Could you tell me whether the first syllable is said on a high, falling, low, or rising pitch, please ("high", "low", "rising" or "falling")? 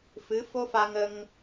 rising